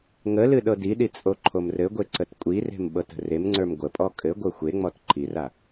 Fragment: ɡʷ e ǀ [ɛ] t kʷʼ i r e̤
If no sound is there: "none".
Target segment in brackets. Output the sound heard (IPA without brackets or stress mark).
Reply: ə